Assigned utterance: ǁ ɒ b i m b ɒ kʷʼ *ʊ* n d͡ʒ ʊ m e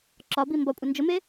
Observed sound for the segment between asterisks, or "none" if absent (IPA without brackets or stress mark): ə